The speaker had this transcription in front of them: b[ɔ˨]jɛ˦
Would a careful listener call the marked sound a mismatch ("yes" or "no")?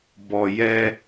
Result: no